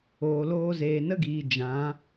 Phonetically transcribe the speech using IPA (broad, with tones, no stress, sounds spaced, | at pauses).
oː˨ l oː˧ z eː˨ n ə˦ ɡ iː˨ d͡ʒ ã˨˦